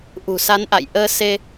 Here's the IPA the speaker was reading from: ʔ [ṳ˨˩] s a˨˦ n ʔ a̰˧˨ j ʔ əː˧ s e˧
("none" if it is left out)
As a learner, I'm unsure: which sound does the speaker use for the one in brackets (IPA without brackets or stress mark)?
ṳ˨˩